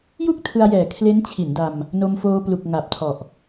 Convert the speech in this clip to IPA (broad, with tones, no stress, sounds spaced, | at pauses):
j u˥˩ k̚ tʰ ɯ˧ a̯ j ɛː˨˩ kʰ l e˦˥ n t͡ɕʰ i˩˦ n d a˧ m | n o˧ m f oː˧ p l u˨˩ k̚ ŋ a˨˩ p̚ tʰ ɔ˨˩ ʔ